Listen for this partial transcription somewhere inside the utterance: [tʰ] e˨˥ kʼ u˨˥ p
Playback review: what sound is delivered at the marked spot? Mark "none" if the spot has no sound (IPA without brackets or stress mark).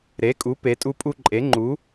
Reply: ɾ